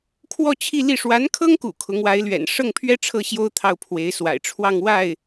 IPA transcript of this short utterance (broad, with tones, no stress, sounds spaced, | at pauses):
kʰ w ɔ˥˧ t͡ɕʰ i˥˧ l i˥˩ ʂ w a˧˥ n kʰ ɤ˥ ŋ k ṵ˨˩ kʰ ʊ˧˥ ŋ w a˧˥ ɪ̯ l ɥ ɛ̰˨˩ n ʂ ɤ˥˩ ŋ pʰ ɥ ɛ˥ ʈ͡ʂʰ ɤ˥˩ ɕ j o˥ ʊ̯ t̪ʰ ɑ˥˩ ʊ̯ pʰ w e˧˥ ɪ̯ s w a̰˨˩ ɪ̯ ʈ͡ʂʰ w ɑ˥˧ ŋ w a˥˩ ɪ̯